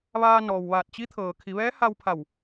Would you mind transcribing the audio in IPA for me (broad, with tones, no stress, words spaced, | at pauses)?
ʋaː˧ nɔː˩wʋaː˧˩t̚t͡ɕi˧˥ t̪ʰɤː˩kʰi˩˧ʋɛː˧˥ha˧w pʰa˧˩w